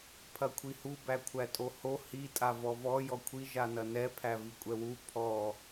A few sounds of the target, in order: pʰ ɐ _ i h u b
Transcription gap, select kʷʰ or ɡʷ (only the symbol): kʷʰ